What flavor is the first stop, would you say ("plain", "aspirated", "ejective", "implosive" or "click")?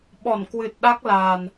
implosive